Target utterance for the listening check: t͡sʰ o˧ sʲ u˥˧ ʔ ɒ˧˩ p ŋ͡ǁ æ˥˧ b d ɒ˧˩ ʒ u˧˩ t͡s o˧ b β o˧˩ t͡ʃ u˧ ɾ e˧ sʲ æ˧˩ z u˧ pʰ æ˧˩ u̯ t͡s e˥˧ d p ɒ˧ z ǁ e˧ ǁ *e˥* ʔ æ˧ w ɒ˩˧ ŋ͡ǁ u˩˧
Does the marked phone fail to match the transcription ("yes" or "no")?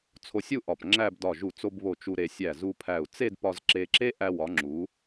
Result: no